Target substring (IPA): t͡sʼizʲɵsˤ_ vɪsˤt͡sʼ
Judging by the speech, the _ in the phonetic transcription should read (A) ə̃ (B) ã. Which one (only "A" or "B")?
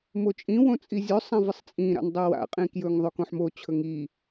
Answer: B